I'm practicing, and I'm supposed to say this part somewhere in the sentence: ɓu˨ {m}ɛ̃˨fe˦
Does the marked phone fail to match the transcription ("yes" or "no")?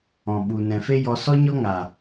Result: yes